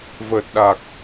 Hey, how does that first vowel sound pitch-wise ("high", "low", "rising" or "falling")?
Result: low